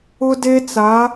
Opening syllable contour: high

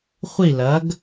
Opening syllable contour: falling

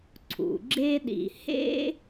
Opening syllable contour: low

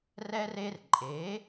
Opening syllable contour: high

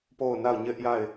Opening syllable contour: falling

